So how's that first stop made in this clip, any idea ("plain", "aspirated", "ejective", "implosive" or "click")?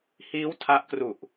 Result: aspirated